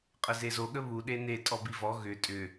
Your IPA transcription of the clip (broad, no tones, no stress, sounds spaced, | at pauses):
qʼ ə z e z o ɠ ə β u ɗ e n e tʼ ɔ b i v ɔ ɣ ʏ tʼ ʏ